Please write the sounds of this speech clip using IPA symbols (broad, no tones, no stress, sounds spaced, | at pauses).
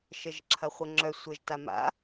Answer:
ʃ ə ʒ ǁʰ ɐ χʷ ə ŋ͡ǁ œ sʷ ə ʒ t a m a̰